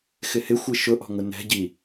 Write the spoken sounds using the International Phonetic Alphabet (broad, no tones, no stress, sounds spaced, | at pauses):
x ɪ h ɪ xʷ i ʃ ʊ ʔ ɔ̤ ŋ ʊ n ɛ̤ ɟ i